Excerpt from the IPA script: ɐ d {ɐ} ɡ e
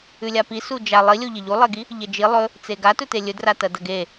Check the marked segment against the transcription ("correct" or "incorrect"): correct